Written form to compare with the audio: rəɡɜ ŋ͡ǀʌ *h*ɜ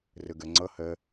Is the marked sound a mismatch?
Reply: no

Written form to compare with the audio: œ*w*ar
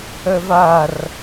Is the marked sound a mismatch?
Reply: yes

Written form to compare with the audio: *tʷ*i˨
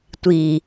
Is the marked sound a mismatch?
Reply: no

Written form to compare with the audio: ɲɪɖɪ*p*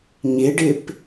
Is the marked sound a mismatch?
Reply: no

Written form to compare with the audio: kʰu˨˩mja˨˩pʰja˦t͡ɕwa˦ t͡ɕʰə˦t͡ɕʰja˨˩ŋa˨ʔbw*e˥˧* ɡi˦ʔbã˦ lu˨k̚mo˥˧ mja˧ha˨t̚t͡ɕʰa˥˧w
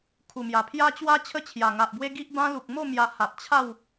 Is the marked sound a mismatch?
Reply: yes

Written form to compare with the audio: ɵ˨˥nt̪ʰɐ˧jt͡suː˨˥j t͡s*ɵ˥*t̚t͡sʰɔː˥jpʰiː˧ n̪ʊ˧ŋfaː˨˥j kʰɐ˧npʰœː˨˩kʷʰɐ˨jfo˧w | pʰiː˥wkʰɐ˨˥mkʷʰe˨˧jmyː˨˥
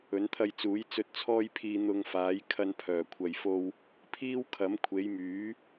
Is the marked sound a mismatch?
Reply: yes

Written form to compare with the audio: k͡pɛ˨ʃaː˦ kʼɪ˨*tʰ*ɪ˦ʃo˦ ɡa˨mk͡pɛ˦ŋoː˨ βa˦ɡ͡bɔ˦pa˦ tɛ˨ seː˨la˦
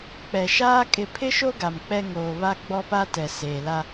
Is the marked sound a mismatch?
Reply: yes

